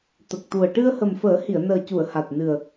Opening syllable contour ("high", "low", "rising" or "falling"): low